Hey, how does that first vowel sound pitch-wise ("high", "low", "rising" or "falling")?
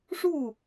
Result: falling